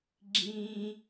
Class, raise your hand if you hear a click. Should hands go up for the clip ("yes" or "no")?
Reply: yes